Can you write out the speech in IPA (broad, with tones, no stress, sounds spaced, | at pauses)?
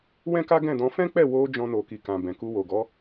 w ɛ̃˦ k a˦ ɡ ɛ̃˦˨ d ɔ̃˨˦ f ɛ̃˦ k͡p ɛ˦˨ w o˧ d͡ʒ ɔ̃˧ n o˨ k i˨ k ã˨ b ɛ̃˨ k u˧ w o˨ ɡ ɔ˨˦